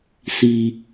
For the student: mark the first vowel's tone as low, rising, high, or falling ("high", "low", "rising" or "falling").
low